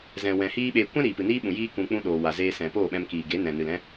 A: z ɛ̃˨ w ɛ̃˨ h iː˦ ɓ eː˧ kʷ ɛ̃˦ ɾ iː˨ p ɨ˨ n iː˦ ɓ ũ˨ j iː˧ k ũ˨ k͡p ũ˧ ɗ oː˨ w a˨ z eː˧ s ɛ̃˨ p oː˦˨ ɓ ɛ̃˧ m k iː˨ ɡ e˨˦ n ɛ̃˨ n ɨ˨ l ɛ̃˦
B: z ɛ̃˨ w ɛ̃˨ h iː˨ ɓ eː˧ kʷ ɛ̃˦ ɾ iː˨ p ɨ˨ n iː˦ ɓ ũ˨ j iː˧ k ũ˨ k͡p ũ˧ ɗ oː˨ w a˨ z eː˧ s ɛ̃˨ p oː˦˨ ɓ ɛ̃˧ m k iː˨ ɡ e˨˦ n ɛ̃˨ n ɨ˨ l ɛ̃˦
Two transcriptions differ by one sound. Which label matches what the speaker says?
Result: A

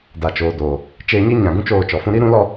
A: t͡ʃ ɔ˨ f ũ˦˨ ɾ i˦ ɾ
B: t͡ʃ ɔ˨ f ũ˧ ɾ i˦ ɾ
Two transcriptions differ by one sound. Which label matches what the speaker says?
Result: B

